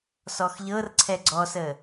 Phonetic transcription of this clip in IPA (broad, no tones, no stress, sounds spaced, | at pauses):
s ɔ x ʎ ɤ r ǀʰ ɛ ɡ͡ǀ ɔ s ə